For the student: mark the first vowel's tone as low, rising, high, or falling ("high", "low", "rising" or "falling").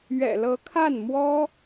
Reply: low